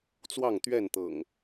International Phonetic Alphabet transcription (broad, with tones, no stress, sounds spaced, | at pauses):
t͡s w ɑ˥˨ ŋ t̪ ɥ ɛ˥˨ n t̪ ɤ̰˨˩ ŋ